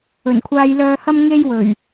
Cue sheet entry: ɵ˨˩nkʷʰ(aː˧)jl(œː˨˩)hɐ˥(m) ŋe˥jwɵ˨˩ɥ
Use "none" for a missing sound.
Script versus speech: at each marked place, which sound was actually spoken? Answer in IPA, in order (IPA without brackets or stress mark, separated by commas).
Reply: aː˧, œː˧, m